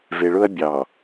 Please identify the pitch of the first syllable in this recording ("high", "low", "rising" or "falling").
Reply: low